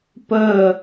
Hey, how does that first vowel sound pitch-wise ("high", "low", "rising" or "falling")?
falling